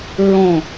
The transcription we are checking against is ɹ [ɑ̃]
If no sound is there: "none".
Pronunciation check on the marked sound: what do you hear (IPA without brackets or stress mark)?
ɔ̃